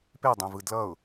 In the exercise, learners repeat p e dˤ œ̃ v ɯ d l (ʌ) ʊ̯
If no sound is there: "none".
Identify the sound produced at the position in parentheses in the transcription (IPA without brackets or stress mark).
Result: ʌ